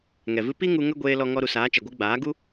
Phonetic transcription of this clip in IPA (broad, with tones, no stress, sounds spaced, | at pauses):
ŋ ɛ˨ v ɨ˦ p i˦ ŋ u˧ ŋ ə˦ ɡʷ eː˧ l ɔ˧ ŋ ɔ˧ ɾ u˨ s aː˨˦ t͡ʃ ɛ˨ ɡʷ ɨ˧ ɡ͡b aː˨˦ ɡ u˦